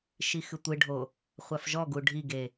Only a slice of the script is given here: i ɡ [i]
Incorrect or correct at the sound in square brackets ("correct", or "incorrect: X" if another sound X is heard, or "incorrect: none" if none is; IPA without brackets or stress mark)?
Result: incorrect: e